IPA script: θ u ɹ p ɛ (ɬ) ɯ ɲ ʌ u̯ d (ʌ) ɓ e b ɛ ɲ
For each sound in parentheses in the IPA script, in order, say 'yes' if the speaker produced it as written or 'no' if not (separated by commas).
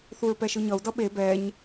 no, yes